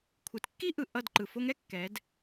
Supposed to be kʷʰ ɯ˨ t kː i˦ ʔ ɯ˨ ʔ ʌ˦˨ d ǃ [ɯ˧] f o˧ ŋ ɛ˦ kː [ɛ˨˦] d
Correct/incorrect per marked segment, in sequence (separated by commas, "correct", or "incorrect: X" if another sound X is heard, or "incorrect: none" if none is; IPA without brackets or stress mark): incorrect: ɯ˨, correct